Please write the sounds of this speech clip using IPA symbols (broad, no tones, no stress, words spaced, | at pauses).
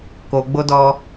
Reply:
koɡ͡bodɔ